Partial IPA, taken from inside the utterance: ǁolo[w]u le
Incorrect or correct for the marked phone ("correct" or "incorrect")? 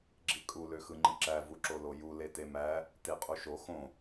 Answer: incorrect